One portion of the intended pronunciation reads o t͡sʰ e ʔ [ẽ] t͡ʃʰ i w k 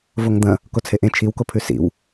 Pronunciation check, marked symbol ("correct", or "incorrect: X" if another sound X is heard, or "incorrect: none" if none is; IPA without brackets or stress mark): correct